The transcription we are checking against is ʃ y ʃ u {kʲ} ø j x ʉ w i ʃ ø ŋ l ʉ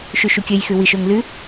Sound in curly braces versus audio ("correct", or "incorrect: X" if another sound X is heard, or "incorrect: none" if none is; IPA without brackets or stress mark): correct